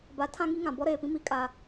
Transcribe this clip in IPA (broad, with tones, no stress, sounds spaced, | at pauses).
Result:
b a˨˦ tʰ ã˦ ŋ i˦ ŋ ã˨ b ɔ˦ ɾ eː˨ p ĩ˦ m i˨˦ kʼ a˦